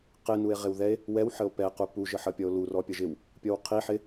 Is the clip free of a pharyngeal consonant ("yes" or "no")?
no